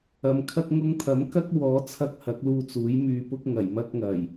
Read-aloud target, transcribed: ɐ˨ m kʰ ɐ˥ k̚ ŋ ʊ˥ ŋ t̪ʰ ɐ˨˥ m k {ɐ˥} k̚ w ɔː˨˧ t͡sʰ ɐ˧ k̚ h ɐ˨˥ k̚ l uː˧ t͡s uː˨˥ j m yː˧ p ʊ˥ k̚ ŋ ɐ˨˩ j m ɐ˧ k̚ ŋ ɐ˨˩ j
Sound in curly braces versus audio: correct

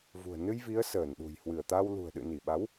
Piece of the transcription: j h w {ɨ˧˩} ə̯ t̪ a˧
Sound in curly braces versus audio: correct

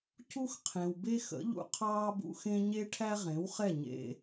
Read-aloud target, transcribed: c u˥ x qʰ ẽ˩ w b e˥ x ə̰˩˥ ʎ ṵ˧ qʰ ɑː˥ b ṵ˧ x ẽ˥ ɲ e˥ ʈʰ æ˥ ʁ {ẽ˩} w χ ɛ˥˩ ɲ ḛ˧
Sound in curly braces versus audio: incorrect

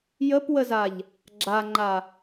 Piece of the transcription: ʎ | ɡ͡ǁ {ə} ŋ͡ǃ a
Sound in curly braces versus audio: incorrect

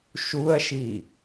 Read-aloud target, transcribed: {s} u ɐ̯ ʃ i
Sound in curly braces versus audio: incorrect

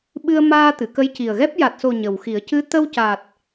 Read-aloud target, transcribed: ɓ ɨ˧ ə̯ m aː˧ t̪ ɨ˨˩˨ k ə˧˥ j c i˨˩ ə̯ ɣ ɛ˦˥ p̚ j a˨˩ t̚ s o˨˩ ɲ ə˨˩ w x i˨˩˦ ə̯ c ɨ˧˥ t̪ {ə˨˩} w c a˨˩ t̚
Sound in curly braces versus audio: incorrect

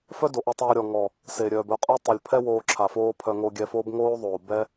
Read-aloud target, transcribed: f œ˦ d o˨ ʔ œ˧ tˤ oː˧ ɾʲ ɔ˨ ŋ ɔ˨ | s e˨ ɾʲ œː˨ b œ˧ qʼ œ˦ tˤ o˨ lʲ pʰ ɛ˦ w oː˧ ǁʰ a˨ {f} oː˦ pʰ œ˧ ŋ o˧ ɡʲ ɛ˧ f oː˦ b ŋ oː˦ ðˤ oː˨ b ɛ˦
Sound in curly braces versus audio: correct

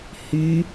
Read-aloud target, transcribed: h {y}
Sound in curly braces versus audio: correct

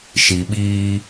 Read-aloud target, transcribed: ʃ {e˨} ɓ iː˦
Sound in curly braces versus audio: incorrect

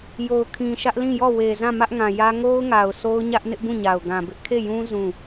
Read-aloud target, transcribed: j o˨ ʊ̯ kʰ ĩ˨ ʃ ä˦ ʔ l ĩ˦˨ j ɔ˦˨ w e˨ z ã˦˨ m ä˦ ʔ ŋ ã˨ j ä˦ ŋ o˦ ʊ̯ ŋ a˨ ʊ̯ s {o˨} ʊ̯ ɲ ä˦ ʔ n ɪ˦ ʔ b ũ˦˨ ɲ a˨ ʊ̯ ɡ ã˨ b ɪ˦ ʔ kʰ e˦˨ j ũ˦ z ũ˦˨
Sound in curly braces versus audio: incorrect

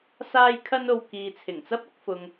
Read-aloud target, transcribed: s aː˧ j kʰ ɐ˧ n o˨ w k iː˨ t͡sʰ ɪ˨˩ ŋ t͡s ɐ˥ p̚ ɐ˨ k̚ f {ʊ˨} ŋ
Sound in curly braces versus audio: correct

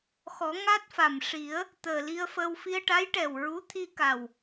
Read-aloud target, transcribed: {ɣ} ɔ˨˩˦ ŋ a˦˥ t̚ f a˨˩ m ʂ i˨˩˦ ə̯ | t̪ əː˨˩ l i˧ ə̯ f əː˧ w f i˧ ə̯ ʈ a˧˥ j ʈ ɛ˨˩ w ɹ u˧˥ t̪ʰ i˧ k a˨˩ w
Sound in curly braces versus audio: incorrect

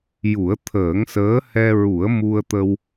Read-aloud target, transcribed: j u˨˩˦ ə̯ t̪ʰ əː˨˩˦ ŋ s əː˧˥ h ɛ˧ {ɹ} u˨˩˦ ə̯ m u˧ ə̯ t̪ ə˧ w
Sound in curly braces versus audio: correct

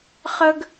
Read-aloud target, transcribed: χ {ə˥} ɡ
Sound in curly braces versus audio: correct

